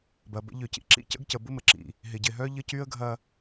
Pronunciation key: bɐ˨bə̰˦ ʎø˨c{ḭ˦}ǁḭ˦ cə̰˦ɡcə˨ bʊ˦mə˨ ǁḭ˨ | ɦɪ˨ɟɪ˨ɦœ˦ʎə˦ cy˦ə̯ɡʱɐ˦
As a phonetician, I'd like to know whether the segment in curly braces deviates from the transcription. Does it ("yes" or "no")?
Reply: yes